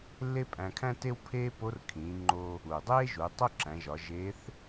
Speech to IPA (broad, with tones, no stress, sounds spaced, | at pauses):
lː e˥ pʼ æ̃˧ kʰ æ̃˥ t e˥ w pʰ eː˥ p o˧˥ r kʰ ĩː˩˧ ŋ͡ǃ o˧ | uː˩ dˤ eː˥ ʒ uː˩˧ tˤ o˥ ǁ æ̃˩˧ ʒ ɒ˩˧ ʒ eː˧˥ θ